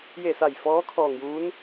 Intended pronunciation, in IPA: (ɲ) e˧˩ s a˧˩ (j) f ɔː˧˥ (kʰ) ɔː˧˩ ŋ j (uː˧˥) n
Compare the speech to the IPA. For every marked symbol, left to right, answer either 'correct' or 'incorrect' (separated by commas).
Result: incorrect, correct, correct, correct